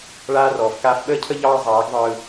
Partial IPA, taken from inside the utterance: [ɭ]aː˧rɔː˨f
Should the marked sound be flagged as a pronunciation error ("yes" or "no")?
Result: no